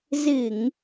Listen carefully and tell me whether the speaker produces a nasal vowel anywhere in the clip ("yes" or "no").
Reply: no